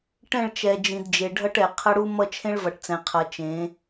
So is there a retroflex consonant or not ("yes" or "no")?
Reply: yes